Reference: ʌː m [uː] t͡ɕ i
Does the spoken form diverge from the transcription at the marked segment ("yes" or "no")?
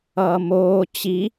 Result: yes